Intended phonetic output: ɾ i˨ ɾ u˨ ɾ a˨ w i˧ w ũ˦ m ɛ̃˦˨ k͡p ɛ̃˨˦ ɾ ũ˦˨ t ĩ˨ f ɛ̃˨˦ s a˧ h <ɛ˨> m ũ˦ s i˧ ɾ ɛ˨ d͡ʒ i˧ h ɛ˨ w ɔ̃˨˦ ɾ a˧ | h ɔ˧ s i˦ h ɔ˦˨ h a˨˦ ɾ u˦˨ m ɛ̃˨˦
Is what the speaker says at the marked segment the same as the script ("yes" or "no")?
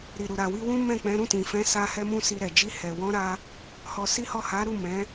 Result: no